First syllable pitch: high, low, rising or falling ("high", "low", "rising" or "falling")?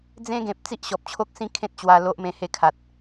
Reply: high